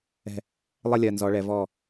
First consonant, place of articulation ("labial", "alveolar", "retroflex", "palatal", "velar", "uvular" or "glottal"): alveolar